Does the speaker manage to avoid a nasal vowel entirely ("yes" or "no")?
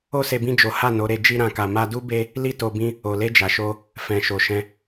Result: no